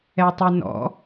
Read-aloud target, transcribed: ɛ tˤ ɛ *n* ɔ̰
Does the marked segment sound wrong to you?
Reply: no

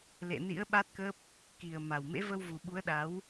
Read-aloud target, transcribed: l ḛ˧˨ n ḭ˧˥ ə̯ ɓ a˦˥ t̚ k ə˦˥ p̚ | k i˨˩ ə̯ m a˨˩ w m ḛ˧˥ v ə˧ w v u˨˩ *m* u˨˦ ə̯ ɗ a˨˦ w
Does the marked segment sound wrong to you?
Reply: yes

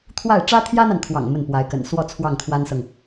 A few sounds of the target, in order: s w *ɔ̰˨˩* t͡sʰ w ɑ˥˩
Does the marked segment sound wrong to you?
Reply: yes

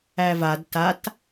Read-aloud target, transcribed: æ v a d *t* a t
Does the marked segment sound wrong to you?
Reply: no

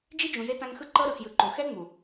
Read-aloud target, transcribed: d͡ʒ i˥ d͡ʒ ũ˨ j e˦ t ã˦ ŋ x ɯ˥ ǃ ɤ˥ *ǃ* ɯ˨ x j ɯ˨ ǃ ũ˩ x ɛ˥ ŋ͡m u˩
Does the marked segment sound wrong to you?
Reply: yes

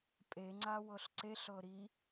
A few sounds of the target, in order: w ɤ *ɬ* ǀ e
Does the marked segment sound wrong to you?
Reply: no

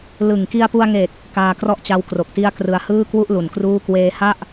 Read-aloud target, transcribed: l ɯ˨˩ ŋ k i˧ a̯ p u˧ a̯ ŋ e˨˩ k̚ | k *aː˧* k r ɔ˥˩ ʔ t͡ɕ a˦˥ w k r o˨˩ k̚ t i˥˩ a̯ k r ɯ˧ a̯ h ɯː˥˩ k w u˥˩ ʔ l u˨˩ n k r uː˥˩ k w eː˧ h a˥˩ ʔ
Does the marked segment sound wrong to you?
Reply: no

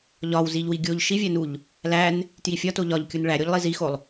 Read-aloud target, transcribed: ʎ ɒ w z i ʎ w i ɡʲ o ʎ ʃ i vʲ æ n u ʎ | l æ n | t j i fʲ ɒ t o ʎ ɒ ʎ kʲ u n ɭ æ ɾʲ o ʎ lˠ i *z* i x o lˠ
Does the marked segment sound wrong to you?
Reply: no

